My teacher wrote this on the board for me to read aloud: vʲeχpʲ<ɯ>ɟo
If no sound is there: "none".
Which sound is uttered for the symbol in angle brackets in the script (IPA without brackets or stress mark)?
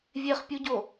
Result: u